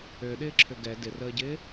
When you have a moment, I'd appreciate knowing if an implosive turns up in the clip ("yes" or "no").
yes